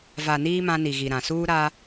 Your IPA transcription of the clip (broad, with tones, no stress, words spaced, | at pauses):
va˨niː˦ mã˦ni˨ɣi˨ɾã˨ suː˦ɾa˦